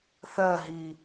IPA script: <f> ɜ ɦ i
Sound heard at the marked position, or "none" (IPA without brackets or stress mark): θ